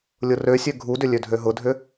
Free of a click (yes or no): yes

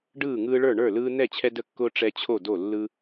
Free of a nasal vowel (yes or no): yes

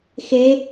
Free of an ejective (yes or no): yes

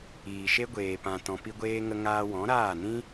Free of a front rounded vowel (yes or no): yes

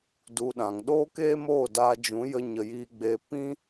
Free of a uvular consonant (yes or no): yes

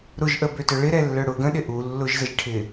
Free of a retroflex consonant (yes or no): no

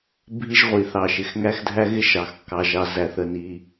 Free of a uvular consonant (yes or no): no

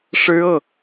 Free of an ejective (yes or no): yes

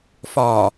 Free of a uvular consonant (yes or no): yes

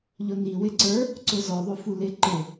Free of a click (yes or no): no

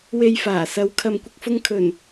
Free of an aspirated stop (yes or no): no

